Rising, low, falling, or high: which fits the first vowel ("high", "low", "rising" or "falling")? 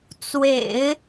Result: low